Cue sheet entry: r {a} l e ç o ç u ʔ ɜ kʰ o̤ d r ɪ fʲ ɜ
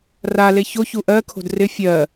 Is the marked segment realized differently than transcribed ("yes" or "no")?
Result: no